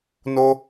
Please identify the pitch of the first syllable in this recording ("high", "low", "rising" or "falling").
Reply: high